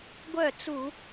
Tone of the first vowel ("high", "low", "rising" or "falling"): falling